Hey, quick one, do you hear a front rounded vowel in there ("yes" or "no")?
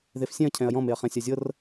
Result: no